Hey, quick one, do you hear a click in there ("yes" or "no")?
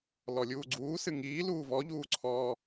yes